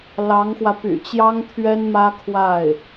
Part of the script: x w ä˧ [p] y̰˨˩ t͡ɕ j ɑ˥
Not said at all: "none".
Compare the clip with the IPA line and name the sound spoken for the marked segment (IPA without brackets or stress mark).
p